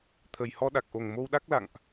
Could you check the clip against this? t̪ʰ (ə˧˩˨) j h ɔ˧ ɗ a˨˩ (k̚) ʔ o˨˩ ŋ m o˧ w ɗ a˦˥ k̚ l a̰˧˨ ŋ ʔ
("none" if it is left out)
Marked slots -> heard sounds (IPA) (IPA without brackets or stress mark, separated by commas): ə˨˩, k̚